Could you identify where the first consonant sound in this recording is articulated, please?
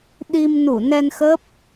alveolar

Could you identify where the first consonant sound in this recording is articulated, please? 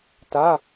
alveolar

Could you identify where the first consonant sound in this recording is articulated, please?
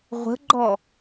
uvular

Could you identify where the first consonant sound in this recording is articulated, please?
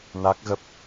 alveolar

